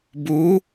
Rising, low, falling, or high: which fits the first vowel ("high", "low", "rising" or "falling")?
rising